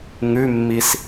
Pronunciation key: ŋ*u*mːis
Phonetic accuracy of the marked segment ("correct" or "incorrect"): incorrect